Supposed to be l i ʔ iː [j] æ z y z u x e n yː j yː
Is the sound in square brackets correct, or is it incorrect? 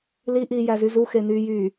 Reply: correct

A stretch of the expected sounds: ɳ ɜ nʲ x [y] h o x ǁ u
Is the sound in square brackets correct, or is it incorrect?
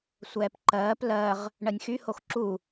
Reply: correct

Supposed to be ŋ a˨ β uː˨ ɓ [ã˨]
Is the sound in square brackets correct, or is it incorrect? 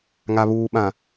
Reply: correct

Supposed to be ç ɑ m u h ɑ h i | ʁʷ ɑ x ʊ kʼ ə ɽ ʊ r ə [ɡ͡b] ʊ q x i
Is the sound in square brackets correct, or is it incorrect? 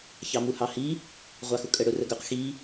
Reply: incorrect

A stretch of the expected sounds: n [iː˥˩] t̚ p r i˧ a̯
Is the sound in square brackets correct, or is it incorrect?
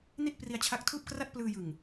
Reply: incorrect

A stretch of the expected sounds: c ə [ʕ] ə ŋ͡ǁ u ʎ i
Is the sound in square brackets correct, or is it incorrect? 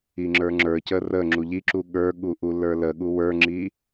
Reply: incorrect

